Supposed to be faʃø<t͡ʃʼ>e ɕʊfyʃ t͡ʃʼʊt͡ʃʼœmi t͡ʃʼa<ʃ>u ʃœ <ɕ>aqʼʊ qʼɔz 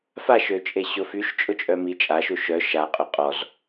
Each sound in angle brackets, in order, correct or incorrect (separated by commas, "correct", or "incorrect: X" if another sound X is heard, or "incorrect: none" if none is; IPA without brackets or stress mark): correct, correct, incorrect: ʃ